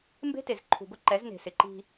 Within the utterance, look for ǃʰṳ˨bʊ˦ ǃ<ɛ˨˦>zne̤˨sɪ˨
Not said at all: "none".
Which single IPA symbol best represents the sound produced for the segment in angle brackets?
ɛ˨˦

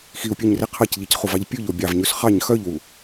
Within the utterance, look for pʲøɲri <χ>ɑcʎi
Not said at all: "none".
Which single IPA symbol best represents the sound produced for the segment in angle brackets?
qʰ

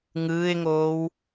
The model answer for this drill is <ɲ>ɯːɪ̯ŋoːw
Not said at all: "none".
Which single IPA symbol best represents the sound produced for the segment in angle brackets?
ŋ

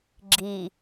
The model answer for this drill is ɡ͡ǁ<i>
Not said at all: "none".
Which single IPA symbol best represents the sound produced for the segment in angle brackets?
i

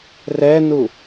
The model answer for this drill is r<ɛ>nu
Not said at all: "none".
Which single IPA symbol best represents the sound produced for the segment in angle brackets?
ɛ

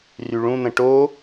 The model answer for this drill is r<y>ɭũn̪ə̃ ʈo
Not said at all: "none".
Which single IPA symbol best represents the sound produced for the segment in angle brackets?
y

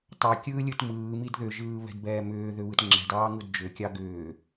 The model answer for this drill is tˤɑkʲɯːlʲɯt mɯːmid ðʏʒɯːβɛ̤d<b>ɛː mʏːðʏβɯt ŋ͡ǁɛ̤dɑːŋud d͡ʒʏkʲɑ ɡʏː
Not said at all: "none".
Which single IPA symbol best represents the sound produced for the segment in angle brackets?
b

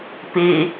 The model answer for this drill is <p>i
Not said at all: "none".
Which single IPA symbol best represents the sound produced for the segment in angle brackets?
p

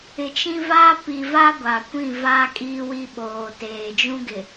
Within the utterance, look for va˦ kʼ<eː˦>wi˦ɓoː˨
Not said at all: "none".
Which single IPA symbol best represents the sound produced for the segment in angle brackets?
iː˦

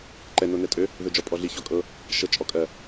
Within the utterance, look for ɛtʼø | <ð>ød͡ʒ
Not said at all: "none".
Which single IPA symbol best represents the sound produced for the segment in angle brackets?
ð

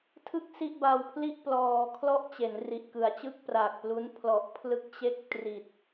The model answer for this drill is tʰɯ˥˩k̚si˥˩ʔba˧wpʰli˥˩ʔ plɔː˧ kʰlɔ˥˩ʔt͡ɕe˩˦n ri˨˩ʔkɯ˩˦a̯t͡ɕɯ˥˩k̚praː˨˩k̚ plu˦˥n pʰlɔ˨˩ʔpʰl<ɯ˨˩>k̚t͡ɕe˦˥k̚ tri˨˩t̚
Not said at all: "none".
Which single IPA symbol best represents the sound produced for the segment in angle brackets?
ɯ˦˥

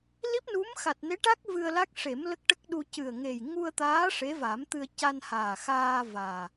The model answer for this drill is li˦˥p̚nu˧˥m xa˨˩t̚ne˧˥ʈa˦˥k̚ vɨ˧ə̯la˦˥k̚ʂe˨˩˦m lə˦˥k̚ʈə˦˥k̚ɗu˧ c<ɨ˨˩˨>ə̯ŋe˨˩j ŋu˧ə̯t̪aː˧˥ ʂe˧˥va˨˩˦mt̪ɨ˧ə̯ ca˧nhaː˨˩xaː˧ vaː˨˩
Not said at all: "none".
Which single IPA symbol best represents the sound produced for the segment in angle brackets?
ɨ˨˩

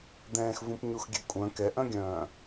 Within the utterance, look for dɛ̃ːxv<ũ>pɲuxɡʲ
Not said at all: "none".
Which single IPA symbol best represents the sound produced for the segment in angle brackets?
ũ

